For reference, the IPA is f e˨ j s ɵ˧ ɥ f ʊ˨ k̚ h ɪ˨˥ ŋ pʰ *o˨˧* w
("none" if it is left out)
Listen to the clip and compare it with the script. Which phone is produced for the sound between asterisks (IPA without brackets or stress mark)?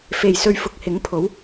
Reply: o˨˥